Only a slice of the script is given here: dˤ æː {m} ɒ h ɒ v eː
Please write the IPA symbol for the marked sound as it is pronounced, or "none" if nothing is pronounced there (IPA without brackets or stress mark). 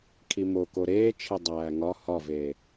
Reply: ŋ